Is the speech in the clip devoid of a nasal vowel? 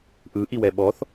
yes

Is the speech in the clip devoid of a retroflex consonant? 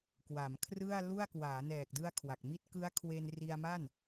yes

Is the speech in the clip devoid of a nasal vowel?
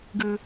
yes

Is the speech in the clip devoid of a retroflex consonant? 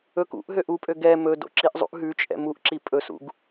yes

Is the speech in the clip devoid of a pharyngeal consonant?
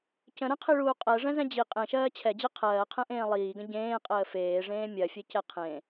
yes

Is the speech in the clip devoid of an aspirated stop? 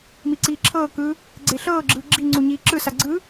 no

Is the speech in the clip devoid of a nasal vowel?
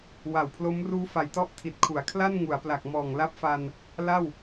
yes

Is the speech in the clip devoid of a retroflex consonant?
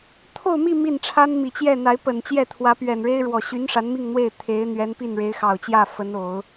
no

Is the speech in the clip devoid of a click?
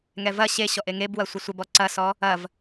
no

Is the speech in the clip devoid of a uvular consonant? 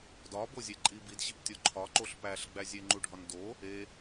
yes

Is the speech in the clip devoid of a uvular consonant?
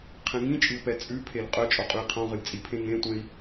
no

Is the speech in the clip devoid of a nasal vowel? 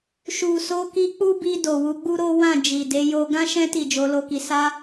no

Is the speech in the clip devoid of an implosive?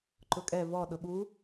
no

